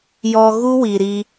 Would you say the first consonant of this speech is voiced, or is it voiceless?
voiced